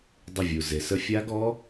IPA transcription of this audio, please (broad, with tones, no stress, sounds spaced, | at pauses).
dˤ ə˧˩ vʲ u˩ z e˩ s ə˧ fʲ a˦˥ ɡ ɔ˦˥